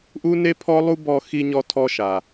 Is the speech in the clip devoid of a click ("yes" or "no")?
yes